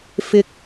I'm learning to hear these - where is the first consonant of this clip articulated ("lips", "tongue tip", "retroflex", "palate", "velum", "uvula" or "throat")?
lips